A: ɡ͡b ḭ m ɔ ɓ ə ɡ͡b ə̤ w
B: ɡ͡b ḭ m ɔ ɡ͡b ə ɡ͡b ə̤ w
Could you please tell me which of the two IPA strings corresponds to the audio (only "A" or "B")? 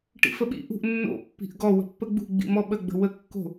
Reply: A